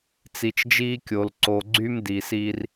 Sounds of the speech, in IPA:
t͡si˨t͡ʃd͡ʒiː˦kʲo˨l ǀo˨ɡ͡ǀy˦m diː˨si˦r

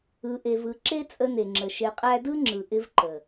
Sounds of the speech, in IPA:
ɯ˧ʔe˧vɯ˧ ǁe˦t͡sʼə˧ne˨ŋ͡ǁə˨ ʃe˧qʼæ˦ dɯ˦ŋ͡ǁɯ˨ ʔɪ˧v ǃə˨

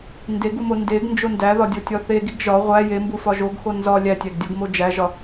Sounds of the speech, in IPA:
ndeɡumo ndeɡnd͡ʒo ndæðɒdʲotʲɒ θeɡiɡ ʒɒ ʁʷæ jembufɒ ʒoɡxo nzɒ lʲætʲæɡdʲoɡmo d͡ʒæʒɒ

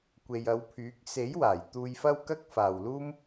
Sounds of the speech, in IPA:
kʷe˨jɐ˨˧wpʰyː˨˥k̚ se˨˥jwaː˨˩j t̪uː˧jfɐ˥wkɐ˥k̚ faː˨wluː˥m

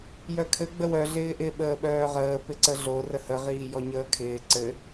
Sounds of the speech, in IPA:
jœkʰɘ ɡ͡bəwœ ɮɪːʔɪ ɓəːɓœːʁəː pɪǀəɮo rəhə ʁiːjɔɲəːkʰɪː ǀɘ

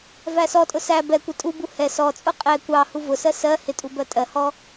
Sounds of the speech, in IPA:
væsɔtʼʊ sæ bɛkʷɪ tʼubu hɛ sɔt͡sʼʊ qʼɛ kʷɑ huvʊsɜ sɜ hɪtʼu bɜtʼɜhɔ

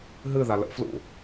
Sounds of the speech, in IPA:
ɦɨ ðalə̰flṵ

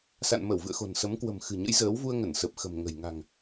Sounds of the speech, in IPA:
sa̰˧˨nmə˧˩wvɨ̰˧˨ə̯xo̤˨˩n sə˨˦mkwə̤˨˩m xɨ̤˨˩ɲə̰˧˥jzəː˨˦w vu˧ə̯ŋə˧˩nsə˨˩p̚ xə̤˨˩mŋə̤˨˩j ŋa̤˨˩ŋ

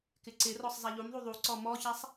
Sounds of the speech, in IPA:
kɪǀɪrɔsˤ zˤaʎumðˤu ðˤuǀɔ mɔçasˤ

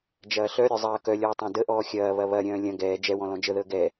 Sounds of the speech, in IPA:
d͡ʒɐːɬœɾʲœ zˤɐːkœlʲɔː tˤãdəʔɔː xʲɐːβɐ βɐɾʲœ̃ː lʲɐ̃ ɡɛː d͡ʒɛwɔ̃ lɔ̃d͡ʒəðəː ɡɛ

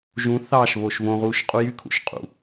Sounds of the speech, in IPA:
ʒũ θɑʃβoʃ võʁuːʃ qʼujykʰṵʃqʼṵ

